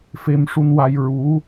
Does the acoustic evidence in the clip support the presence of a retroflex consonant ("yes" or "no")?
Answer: yes